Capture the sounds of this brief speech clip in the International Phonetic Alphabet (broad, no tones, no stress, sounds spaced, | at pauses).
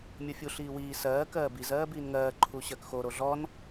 mʲ o fʲ u ɬ iː w iː s ɜː k ɜː b i z ɜː b iː n ŋ ɜː ǃʰ u ɕ ɜ k x o ɾ o ɮ ɔ n